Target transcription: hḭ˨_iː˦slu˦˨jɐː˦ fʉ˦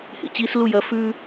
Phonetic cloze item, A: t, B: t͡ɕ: B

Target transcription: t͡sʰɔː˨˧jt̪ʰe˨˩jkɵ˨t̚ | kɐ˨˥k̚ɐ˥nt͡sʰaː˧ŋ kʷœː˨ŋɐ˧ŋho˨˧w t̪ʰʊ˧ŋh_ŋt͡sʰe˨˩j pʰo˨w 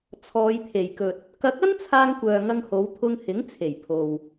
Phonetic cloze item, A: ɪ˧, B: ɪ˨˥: B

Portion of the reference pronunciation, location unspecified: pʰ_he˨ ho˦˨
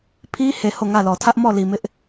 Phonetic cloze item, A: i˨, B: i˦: B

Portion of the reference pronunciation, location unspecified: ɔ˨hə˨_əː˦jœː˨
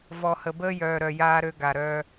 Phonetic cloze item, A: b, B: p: A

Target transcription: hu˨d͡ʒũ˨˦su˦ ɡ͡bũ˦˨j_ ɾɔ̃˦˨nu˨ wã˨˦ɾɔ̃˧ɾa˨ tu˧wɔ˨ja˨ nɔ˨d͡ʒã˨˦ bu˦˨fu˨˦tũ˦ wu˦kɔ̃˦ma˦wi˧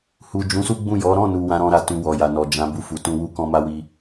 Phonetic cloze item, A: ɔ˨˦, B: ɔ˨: A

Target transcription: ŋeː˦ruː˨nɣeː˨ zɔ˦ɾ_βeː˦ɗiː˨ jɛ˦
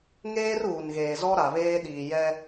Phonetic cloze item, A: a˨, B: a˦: A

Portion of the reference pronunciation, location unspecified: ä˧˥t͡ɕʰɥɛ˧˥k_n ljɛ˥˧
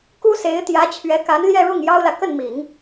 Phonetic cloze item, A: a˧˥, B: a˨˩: A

